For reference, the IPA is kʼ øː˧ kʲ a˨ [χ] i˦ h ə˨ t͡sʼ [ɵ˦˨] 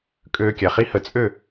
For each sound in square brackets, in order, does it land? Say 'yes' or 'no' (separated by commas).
yes, no